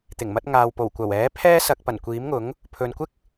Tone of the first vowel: low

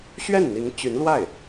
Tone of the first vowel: falling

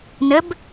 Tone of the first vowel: rising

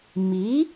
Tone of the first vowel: rising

